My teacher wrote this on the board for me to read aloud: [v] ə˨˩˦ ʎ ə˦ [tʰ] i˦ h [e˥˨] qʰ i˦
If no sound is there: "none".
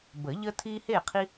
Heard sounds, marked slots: b, tʰ, e˥˨

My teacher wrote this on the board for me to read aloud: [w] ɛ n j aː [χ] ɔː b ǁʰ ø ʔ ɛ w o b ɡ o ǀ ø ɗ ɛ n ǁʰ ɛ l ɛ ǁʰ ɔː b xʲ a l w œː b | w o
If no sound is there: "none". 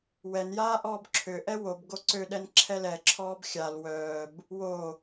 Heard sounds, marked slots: w, ʔ

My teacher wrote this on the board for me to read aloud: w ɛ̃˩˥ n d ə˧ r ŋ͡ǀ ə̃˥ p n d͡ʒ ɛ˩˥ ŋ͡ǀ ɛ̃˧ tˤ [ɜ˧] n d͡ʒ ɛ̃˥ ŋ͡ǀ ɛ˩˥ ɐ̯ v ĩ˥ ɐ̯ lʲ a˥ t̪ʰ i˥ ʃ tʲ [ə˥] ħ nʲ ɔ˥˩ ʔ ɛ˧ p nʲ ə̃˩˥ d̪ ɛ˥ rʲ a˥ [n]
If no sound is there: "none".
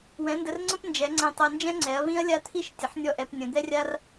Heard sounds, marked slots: ɜ˧, ə˩˥, r

